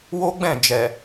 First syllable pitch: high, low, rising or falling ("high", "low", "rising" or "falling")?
high